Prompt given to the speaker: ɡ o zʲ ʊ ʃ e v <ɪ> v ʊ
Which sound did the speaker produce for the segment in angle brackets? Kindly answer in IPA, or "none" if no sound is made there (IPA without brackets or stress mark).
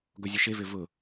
ɪ